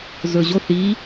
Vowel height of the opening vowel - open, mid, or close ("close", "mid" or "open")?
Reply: mid